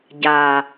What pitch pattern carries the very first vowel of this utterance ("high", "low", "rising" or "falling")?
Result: low